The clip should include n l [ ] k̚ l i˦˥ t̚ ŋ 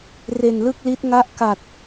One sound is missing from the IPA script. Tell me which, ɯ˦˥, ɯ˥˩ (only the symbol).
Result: ɯ˥˩